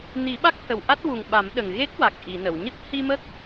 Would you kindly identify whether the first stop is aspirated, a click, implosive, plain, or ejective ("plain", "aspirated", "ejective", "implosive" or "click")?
implosive